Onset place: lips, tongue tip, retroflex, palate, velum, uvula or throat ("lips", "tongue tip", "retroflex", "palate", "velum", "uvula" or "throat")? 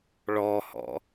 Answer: retroflex